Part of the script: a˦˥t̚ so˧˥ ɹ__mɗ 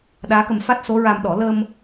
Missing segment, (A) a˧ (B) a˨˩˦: A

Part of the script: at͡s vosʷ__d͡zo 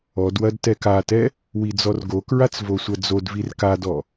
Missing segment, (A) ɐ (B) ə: A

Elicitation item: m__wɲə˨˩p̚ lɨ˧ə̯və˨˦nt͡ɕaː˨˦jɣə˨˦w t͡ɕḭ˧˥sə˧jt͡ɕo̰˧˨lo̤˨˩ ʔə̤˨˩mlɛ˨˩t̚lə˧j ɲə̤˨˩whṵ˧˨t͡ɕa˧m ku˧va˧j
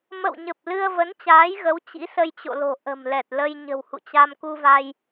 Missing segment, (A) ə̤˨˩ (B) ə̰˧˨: B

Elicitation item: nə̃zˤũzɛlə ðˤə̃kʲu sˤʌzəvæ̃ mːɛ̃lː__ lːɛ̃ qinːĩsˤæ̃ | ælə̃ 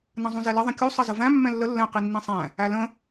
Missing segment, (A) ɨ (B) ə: B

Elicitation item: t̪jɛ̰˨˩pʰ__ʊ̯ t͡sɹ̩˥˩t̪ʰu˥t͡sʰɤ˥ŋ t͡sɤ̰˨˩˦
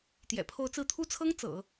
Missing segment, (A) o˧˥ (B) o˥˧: B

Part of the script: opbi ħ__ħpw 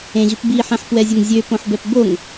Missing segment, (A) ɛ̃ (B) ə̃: A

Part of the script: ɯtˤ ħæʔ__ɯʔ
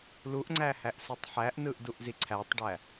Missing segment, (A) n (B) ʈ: A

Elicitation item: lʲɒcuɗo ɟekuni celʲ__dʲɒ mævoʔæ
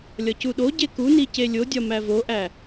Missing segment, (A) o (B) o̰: A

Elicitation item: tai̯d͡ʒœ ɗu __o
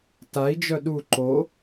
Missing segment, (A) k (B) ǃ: B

